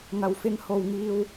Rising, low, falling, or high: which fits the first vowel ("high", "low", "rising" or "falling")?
low